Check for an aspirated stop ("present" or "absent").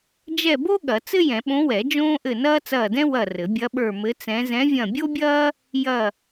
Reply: absent